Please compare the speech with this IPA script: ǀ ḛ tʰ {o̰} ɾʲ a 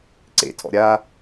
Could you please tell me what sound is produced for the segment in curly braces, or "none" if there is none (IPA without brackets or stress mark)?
ɔ̰